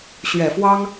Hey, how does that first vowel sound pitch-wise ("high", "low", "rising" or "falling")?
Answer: low